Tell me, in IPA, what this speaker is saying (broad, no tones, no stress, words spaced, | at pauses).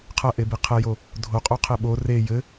qʰɐʔebi qʰɛjo | dʱoqʼoqʰe ɓo re jɘ